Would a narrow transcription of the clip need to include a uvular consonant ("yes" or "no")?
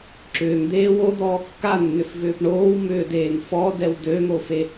no